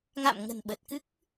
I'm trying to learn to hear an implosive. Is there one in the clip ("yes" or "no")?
yes